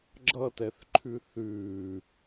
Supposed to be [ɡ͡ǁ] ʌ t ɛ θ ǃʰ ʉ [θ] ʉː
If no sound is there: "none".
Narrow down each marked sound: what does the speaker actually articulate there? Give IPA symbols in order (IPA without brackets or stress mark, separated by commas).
ɡ͡ǁ, θ